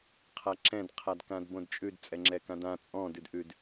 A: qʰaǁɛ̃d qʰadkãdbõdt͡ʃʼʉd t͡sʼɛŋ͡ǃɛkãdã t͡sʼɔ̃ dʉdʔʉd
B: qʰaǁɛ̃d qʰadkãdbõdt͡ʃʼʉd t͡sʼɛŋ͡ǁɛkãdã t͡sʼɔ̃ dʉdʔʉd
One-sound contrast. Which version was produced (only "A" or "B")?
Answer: B